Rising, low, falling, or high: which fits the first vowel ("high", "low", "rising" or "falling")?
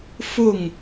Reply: falling